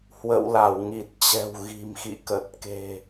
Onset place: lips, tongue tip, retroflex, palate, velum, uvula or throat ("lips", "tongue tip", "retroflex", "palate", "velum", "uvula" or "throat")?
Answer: throat